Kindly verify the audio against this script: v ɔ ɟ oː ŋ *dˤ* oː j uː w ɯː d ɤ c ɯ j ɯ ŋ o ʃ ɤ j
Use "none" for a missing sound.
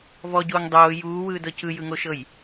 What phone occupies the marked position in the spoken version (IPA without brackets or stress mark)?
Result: dˤ